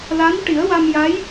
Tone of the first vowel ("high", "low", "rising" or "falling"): rising